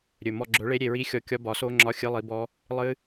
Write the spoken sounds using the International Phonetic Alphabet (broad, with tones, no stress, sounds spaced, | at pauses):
ɾʲ ɵ˨˩ m ɔ˦˨ ɡ͡ǁ ɵ˨˥ ɭ e˦˥ ɾʲ e˦˨ ɹ i˦˥ xʲ ɔ˦˨ kʲ ɒ˦˥ b ɒ˨˥ s o˦˥ ŋ͡ǁ ɒ˧˥˧ xʲ ɨ˧˥˧ lˠ i˨˥ b ɔ˦˥ | lˠ ɨ˦˥